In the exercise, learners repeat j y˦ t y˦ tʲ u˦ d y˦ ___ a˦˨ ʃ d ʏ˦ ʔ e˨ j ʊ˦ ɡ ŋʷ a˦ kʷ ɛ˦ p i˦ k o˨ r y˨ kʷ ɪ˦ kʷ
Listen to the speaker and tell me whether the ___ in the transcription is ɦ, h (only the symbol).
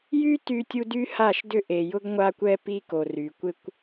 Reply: h